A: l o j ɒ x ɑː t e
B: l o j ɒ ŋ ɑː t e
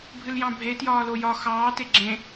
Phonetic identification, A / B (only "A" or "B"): A